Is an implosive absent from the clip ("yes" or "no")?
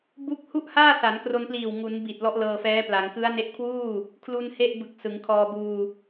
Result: yes